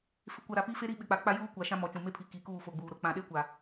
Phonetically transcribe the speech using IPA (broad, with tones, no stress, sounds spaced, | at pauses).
f ɪ˨ kʷ a˨ ɾ a˨ p i˦ f e˦ ɾ i˦ ɓ ɪ˨ k͡p a˨ k͡p a˦ j uː˦ kʷ a˨ ʃ ã˦ m ɔ˨˦ t͡ʃ ũ˨ m e˦ pʰ i˨ k i˨ k uː˦˨ f o˨ ɡ͡b uː˨ ɾ ʊ˨˦ k͡p ã˨ ɗ e˦ kʷ a˨